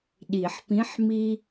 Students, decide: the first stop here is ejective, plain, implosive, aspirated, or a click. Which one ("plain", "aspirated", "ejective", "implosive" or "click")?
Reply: implosive